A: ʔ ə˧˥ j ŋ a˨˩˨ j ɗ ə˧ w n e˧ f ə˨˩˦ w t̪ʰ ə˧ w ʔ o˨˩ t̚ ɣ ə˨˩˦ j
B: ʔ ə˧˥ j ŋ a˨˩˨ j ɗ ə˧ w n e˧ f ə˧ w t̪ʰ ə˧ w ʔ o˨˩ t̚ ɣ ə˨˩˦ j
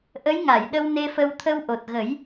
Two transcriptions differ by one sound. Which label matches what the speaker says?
B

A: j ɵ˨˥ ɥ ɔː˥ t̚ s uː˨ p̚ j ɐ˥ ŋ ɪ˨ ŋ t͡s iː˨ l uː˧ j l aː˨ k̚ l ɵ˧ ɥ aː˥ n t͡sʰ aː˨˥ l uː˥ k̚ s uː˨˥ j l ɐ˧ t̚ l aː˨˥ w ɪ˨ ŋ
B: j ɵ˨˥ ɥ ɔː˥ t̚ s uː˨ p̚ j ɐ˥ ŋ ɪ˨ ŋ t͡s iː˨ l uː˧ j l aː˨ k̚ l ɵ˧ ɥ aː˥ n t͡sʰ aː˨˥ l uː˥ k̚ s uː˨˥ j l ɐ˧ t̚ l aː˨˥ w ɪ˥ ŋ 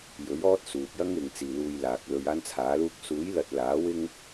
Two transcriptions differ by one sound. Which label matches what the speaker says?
B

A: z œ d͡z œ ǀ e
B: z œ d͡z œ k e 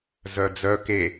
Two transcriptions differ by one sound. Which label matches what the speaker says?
B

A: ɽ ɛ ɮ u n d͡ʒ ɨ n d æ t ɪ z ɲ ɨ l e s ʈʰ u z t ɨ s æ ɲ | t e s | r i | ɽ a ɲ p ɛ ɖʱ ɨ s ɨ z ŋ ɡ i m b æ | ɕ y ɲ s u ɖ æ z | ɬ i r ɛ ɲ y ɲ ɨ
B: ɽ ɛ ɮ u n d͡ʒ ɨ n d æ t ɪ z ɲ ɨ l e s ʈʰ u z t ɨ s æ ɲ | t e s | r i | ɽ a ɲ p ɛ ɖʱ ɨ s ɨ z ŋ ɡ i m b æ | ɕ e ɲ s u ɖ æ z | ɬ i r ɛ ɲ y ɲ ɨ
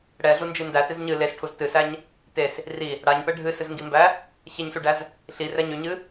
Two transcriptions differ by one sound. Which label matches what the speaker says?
B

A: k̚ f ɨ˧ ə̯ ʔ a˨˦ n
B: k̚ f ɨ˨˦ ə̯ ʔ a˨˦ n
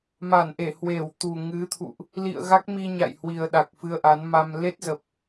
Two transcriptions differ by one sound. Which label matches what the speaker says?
A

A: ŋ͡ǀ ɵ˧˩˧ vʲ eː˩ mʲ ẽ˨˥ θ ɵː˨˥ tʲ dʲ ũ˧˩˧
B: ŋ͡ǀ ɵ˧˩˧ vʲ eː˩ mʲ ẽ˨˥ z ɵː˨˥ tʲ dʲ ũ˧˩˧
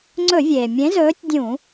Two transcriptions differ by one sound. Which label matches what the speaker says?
B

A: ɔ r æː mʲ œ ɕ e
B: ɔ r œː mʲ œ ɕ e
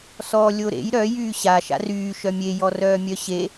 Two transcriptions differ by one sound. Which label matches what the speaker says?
B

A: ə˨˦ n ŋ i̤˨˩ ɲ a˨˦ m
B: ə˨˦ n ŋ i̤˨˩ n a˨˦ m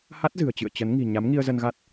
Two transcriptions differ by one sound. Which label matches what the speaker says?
A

